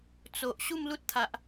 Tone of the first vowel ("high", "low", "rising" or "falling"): low